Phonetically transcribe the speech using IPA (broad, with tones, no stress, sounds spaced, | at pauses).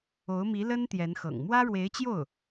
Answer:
o˧˥ ʊ̯ m i˧˥ l ə˥ n t̪ j ɛ˧˥ n x ɤ̰˨˩ ŋ m w ä˥ ɻ w e˧˥ ɪ̯ t͡ɕ j o˥˩ ʊ̯